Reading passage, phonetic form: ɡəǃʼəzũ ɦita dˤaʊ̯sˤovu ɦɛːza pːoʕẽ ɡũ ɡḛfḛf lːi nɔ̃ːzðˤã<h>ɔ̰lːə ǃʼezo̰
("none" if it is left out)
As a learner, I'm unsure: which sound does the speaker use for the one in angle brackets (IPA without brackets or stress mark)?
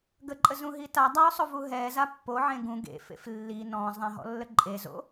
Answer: ɦ